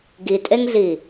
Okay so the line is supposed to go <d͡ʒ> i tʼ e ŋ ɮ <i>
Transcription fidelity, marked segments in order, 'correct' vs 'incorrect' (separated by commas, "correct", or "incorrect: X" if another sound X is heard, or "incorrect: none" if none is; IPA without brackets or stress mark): incorrect: ɡ, correct